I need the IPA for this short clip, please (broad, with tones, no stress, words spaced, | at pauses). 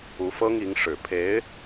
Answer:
u˧˥fɤ˥ŋi˧˥ŋ ʂɻ̩˨˩pʰe˧˥ɪ̯